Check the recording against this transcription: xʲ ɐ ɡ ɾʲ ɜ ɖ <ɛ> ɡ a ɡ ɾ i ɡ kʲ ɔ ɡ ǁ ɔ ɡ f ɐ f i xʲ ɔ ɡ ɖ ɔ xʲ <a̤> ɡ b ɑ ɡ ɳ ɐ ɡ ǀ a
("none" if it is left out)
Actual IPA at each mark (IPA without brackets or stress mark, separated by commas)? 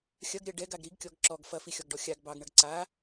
ɛ, a